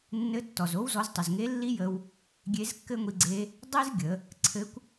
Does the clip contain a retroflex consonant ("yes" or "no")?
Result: no